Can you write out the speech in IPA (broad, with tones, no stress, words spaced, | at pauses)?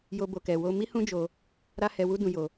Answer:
jo˦bo˧kɛ˧wo˦ mi˦hũ˦d͡ʒo˧ | ɾa˦hɛ˧wu˦dũ˧ jo˧